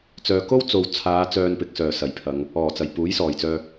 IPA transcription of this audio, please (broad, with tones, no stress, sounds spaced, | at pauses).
t͡s œː˨ k o˥ w t͡s o˨ w t͡sʰ aː˨˧ t͡s œː˧ n p ɪ˨ k̚ s œː˨˩ s ɐ˨˩ j pʰ ɐ˨˧ ŋ | ɔː˨˩ t͡s ɐ˨˩ j p uː˨˥ j s ɔː˨˩ j t͡s œː˧